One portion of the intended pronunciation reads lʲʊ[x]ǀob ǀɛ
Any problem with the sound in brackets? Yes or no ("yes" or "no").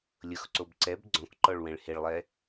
no